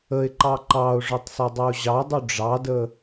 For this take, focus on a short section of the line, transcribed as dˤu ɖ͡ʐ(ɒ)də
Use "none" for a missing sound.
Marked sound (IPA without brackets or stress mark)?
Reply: ɑ